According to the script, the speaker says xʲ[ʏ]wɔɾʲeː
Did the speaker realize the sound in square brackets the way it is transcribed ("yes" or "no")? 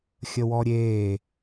no